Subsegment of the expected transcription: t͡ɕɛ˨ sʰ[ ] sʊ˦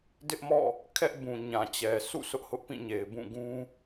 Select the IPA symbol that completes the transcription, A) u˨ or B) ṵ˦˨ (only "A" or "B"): B